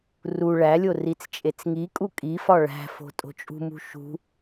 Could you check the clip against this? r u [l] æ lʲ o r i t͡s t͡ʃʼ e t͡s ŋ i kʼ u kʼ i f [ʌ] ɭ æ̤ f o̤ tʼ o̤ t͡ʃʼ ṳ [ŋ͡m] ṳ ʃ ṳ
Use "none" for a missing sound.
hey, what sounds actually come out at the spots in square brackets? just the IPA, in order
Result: ɭ, ɒ, m

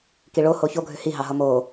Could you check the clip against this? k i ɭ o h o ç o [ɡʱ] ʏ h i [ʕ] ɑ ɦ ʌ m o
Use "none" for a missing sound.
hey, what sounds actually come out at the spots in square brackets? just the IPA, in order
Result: ɡʱ, ɦ

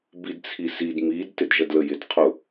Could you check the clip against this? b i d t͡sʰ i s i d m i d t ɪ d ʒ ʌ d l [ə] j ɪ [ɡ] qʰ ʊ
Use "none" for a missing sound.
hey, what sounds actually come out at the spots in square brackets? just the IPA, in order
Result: ə, d

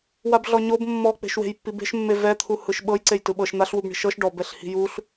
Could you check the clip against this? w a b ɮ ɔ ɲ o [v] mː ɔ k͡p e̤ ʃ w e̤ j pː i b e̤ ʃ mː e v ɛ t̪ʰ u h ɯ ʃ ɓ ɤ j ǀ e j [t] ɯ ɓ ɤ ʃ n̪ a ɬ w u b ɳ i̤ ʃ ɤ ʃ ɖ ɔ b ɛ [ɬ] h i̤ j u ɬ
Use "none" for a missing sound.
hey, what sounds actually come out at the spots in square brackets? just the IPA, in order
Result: b, t, ɬ

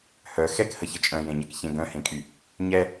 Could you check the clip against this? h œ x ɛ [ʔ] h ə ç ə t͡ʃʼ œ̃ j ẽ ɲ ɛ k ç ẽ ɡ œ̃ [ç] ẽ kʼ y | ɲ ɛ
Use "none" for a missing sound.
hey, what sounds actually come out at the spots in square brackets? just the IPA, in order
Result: k, h

